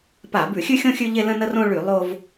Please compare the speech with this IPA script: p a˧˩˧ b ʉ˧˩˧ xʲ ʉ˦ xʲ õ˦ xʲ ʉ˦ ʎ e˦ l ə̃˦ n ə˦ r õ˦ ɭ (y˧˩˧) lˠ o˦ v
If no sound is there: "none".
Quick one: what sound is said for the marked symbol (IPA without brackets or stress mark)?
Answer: y˧˩˧